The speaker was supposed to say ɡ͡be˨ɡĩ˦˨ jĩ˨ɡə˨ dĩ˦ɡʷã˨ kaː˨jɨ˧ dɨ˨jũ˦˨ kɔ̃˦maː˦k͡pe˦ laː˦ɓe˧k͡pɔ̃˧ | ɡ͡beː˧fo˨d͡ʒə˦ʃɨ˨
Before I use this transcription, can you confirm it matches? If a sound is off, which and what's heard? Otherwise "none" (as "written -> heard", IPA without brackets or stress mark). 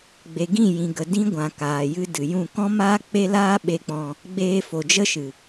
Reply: none